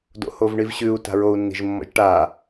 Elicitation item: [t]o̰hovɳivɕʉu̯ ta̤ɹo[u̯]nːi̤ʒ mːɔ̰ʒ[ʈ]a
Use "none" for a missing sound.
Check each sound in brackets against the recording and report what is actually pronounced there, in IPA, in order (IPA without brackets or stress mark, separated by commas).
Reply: d, u̯, ʈ